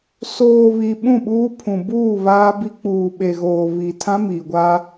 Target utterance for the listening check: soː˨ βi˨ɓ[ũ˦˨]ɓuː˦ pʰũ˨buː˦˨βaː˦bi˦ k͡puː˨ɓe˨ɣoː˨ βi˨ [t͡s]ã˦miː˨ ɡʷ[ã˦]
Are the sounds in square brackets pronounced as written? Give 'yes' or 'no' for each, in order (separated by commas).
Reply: yes, no, no